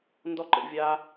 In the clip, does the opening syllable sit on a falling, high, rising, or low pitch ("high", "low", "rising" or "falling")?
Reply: high